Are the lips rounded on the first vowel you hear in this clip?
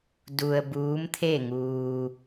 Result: yes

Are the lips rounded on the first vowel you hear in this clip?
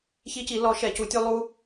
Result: no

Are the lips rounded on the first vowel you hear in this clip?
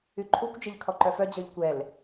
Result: yes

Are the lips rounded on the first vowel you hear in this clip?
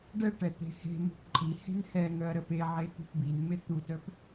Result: no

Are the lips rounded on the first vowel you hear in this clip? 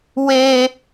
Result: no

